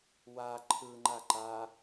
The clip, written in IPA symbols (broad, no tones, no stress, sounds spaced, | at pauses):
w a ǃʰ ɯ ŋ͡ǃ a ǃ a